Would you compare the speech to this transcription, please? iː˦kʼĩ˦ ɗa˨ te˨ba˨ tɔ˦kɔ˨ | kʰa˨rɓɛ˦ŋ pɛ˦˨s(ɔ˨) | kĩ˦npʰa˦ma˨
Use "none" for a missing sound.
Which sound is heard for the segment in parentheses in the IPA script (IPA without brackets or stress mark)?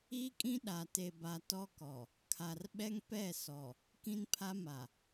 ɔ˨